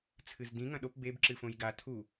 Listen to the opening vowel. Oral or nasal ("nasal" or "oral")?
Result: oral